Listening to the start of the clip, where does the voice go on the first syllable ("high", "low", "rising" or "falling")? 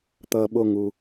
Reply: low